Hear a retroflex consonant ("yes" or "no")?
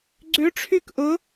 yes